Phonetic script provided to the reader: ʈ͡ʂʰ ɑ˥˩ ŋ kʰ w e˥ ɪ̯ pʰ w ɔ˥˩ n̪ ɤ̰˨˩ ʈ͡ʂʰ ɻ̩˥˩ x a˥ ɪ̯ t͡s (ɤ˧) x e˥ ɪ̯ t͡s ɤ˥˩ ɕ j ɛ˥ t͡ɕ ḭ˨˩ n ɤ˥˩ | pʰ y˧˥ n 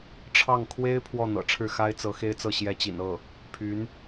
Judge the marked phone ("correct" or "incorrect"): incorrect